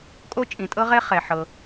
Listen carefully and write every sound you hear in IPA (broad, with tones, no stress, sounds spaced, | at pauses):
kʼ o˦ t͡ʃʼ ĩ˩ tʼ ɤ˦ ʁ ɛ˦ χ ɛ˩ ħ ɤ˩